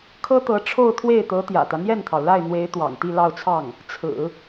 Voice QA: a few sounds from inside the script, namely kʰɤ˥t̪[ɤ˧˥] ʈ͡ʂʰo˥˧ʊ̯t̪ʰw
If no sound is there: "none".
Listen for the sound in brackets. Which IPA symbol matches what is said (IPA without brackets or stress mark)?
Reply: ɤ˧˥